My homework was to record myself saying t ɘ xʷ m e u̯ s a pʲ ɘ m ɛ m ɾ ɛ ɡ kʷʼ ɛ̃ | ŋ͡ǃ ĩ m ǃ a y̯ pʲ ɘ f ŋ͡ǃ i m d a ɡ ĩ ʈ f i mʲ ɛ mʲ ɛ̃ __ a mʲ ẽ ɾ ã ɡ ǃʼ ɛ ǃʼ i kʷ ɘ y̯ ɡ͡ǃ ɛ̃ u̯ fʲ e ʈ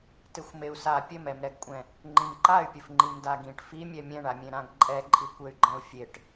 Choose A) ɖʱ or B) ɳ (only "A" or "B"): B